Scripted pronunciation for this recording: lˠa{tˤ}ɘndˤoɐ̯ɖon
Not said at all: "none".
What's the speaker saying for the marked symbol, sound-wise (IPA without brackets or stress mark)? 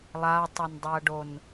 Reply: tˤ